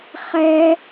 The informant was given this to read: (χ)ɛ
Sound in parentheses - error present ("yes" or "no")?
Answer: no